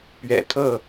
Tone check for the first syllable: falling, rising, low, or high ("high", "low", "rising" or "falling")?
low